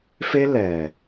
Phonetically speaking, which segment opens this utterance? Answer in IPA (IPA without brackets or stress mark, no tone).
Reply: f